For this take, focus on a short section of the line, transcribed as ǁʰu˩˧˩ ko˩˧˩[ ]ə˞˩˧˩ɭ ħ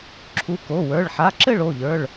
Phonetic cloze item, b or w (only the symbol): w